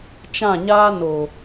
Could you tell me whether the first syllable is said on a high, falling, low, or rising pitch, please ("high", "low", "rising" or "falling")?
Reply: falling